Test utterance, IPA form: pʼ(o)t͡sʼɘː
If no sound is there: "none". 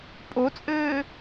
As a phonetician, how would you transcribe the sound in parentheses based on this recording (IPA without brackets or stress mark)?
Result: o